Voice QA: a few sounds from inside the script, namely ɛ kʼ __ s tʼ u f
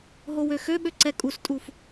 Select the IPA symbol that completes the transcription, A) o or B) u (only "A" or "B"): B